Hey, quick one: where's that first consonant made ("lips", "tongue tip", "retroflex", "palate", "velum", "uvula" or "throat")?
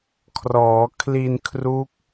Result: velum